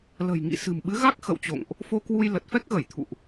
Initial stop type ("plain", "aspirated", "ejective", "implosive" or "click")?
implosive